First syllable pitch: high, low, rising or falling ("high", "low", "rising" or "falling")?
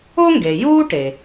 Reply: high